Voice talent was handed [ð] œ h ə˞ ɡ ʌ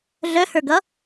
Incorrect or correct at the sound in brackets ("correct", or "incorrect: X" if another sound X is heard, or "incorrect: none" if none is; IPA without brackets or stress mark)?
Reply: incorrect: ɮ